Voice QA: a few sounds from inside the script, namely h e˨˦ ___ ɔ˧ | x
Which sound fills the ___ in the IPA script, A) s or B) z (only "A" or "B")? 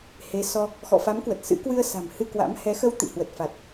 A